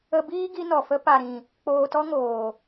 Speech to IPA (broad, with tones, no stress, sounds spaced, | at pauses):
ə˧ b iː˦ ɡ i˦ n ɔ˨ f ə˦ p a˨ ɾ ĩ˨ | k͡p oː˧ t ɔ˦ ŋ oː˨